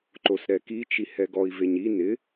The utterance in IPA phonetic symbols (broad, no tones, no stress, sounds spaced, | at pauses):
ǃ o s ɾ ɛ k i t͡ʃ i h ɛ ɡ ɔ i̯ v e ɲ i n ɪ